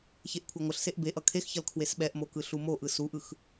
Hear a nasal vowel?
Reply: no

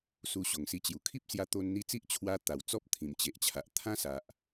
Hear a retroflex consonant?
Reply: no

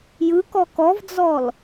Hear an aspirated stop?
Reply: no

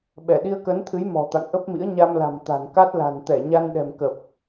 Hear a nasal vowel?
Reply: no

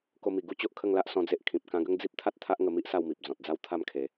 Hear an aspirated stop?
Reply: yes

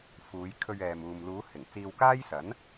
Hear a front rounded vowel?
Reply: no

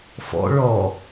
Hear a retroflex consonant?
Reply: yes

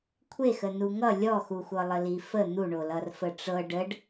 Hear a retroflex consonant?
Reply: yes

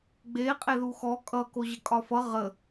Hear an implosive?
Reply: no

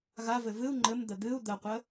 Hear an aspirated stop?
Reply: no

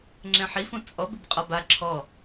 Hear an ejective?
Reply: yes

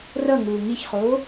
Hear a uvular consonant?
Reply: yes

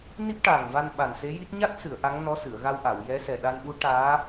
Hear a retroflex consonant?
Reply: yes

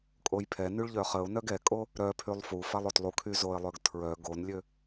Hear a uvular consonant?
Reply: yes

